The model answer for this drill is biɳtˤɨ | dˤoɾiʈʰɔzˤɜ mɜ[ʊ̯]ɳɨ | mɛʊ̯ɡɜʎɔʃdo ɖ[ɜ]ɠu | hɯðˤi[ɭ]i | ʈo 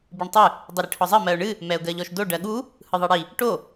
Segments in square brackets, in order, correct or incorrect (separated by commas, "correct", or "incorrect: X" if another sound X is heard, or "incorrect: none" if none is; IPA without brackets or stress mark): correct, correct, incorrect: ɽ